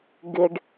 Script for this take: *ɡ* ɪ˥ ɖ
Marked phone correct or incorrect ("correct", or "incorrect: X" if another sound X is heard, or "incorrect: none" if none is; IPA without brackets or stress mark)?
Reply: correct